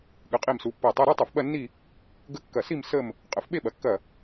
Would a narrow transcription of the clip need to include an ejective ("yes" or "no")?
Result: yes